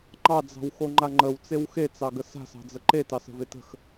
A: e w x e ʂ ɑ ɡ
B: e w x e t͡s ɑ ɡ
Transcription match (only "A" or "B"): B